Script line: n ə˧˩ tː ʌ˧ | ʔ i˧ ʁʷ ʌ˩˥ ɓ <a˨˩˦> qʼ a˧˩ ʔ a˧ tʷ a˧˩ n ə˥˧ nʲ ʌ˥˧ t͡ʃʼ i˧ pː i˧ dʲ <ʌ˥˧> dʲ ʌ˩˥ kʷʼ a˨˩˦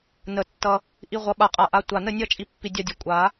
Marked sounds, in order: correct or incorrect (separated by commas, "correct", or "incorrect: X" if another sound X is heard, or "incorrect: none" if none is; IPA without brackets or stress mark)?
incorrect: a˧˩, incorrect: a˥˧